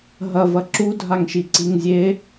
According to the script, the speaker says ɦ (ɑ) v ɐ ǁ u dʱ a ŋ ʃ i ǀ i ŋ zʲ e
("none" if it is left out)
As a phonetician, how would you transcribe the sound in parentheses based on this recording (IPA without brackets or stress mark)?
ɐ